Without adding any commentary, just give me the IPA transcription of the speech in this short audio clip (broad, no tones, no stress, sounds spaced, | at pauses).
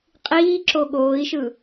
qʼ iː ǁ o ɠ oː i̯ ʃ ɯ